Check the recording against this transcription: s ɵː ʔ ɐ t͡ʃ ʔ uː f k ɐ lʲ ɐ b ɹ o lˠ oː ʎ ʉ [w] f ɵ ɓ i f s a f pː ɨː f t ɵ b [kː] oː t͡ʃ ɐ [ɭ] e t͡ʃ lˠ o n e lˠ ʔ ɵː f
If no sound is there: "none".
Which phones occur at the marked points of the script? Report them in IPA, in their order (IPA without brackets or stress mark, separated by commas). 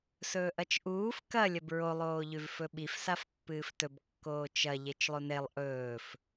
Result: v, kː, ʎ